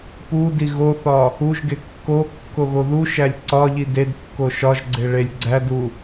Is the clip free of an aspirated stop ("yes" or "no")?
yes